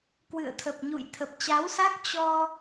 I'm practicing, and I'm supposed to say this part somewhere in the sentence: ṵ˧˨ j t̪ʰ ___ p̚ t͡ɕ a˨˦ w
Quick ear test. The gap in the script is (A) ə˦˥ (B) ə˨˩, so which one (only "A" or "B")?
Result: B